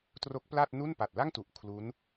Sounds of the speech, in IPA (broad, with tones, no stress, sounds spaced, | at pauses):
t r o˦˥ k̚ p l a˥˩ t̚ n u˥˩ n p a˨˩ t̚ l a˥˩ ŋ t u˨˩ ʔ kʰ l u˦˥ n